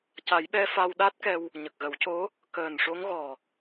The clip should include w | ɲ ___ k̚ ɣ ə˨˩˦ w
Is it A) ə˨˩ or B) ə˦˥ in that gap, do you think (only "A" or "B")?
A